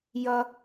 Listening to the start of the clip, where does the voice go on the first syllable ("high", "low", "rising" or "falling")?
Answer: high